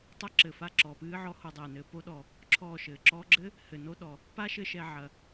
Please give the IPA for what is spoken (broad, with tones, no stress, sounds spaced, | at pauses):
tˤ ɐ˦ ǁ ɘ˨ f a˧ ǁ ɔ˨ p ɨː˦ ʕ ɔ˦ h o˧ dˤ ɛː˨ n ɘː˧ p o˧ ɗ ɔ˨ | ǁʰ ɔː˦˨ ʃ ɘː˨ ǁ ɔː˧ ɡ͡ǁ ɘ˦ | h ɘ˨ n o˧ ɗ ɔ˨ | p a˦ ʃ ɘ˧ ʃ ɛ˨ ʕ ɐ˨